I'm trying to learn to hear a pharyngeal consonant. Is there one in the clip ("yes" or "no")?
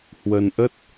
no